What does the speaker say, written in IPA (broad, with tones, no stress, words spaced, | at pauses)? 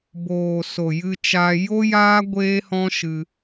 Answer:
boː˨ so˨jɨ˧t͡ʃa˧ jo˦jaː˦ ɡʷeː˦hɔ̃˦ ʃɨ˧